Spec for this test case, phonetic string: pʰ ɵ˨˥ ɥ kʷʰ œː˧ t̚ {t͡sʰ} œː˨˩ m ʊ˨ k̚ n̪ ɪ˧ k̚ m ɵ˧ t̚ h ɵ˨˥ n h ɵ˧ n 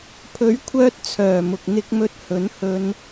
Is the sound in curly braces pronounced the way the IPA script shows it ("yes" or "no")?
yes